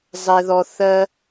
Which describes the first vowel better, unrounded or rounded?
unrounded